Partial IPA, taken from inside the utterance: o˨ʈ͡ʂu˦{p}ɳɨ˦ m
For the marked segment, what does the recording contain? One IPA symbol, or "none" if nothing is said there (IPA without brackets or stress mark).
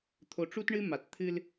t